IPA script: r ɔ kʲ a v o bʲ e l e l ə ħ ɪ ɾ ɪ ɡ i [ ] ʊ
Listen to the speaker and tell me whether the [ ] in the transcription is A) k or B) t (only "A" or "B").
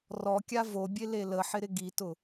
B